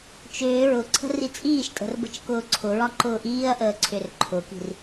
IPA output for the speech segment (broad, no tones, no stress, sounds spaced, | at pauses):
t͡ʃ ʏː ɹ ʊ ǀʰ ə̤ r i t͡sʼ iː ʃ tʼ ə̤ r b ə̤ t͡ʃ k ʊː ǀʰ ʊ ɹ ɒ ǃ ʊː ʔ iː ɐ̯ ʔ əː ǀʰ ʏ r ǃʰ ʊ k i̤ r